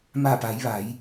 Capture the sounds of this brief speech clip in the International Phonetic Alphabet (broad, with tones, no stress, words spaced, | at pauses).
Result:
ma˧˩pa˩˧jʋa˩˧j